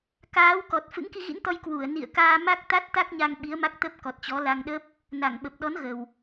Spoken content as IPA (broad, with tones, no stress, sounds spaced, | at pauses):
k aː˨˦ w k ɔ˨˩ t̚ f ɨ̰˧˥ ŋ k i˧ ɣ ḭ˧˥ n t̪ ɔ˧ j k w u˧˩ ə̯ n ḭ˧˨ ə̯ k aː˧ m a˦˥ k̚ t̪ a˦˥ t̚ t̪ a˦˥ k̚ ɲ a˧ ŋ ɓ i˨˦ ə̯ m a˦˥ k̚ t̪ ə˦˥ p̚ k ɔ˨˩ t̚ t͡ɕ ɔ˨˦ l a˧ ŋ ɗ ə˦˥ p̚ | n a˧˩ ŋ ɓ ə˨˩ p̚ ɗ ɔ˨˦ n ɣ ə˨˩ w